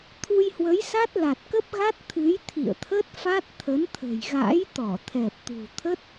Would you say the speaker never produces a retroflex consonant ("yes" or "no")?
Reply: yes